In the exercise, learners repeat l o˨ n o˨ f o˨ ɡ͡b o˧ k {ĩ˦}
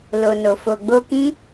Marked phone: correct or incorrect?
correct